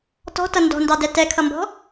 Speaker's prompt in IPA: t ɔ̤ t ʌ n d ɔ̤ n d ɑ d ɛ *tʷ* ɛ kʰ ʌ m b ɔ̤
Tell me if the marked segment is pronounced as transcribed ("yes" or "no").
no